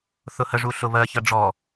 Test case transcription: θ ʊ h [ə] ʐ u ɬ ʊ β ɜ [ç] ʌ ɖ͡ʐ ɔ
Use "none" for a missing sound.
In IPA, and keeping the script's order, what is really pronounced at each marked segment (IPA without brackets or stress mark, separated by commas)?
ə, ç